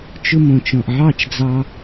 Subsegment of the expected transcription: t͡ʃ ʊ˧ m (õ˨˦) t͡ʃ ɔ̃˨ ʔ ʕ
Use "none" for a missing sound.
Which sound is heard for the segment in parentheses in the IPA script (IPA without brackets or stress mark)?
õ˨